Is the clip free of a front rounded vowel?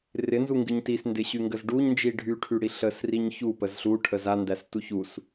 no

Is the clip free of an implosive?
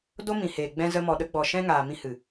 no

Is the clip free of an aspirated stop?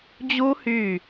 yes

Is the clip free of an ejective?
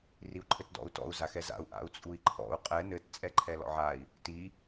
no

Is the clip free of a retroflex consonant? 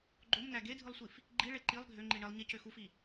no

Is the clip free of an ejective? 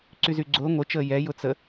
yes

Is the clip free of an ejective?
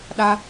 yes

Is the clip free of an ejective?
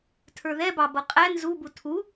no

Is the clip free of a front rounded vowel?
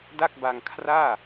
yes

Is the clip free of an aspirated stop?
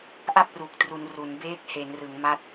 yes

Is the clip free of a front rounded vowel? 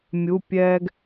yes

